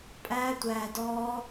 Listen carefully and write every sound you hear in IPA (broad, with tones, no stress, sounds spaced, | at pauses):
pʼ æː˦ tʷ æː˧ d ɔː˦